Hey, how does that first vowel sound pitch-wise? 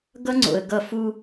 high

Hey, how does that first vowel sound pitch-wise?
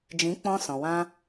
rising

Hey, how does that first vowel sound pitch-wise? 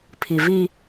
low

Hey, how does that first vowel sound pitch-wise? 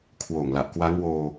low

